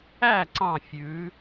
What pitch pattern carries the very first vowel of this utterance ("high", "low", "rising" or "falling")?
falling